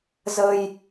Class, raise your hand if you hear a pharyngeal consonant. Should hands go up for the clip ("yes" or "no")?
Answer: no